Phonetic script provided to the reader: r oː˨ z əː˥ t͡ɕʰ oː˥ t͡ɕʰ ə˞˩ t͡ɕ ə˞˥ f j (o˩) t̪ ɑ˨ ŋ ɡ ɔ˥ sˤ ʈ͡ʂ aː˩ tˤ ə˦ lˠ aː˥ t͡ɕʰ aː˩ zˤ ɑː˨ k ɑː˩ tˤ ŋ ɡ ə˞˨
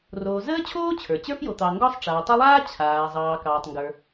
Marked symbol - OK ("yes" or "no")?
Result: no